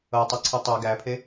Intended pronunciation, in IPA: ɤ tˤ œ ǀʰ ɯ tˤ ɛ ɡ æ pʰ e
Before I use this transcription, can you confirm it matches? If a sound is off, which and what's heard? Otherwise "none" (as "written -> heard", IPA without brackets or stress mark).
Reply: none